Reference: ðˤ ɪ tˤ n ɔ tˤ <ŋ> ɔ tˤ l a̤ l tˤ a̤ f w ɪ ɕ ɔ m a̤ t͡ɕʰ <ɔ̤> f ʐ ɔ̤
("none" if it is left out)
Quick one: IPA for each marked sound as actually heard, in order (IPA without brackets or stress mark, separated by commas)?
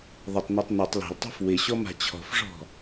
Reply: n, ɔ̤